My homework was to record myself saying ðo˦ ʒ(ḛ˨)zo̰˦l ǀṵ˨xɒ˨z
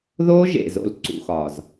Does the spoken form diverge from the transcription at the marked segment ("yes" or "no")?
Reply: no